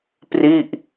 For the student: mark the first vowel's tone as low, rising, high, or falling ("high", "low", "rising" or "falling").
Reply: falling